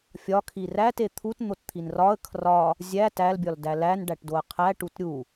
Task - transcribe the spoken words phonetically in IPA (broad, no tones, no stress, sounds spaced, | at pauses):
fʲ ɒ kʰ i r æ t e t̪ʰ u t n̪ o t t̪ʰ i n r ɒ ə̯ kʰ r ɒ | zʲ æ t æ l bʲ ɒ l d æ l æ n ɖ æ ʈ d o ə̯ qʰ æ ʈ u t ɾʲ u